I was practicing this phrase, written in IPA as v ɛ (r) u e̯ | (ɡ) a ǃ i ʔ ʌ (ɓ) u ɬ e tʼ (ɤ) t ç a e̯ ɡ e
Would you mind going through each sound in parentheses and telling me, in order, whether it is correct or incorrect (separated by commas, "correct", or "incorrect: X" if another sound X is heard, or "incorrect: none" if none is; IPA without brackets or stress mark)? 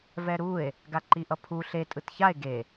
incorrect: ɾ, correct, incorrect: pʰ, incorrect: ɯ